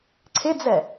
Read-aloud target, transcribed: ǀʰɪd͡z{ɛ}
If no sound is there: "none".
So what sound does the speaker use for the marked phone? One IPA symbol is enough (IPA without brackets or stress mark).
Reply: ɛ